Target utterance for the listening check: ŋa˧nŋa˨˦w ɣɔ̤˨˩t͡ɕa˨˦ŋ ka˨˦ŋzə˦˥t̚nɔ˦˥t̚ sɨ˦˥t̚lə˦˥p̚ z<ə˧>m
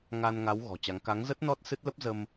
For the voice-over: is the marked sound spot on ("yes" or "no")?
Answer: yes